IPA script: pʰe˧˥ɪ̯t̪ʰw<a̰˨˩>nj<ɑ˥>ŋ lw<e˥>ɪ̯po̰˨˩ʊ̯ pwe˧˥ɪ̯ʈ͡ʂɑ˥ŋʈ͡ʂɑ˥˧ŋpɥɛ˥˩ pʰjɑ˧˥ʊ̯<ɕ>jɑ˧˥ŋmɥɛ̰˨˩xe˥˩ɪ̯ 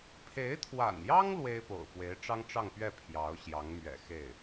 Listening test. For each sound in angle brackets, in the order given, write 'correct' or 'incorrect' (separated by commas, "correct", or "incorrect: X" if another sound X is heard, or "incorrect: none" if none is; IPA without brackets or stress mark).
correct, correct, correct, correct